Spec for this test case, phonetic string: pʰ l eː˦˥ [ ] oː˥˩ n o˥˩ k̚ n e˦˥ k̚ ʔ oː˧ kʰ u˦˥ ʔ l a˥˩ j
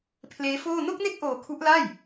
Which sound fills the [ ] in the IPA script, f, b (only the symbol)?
f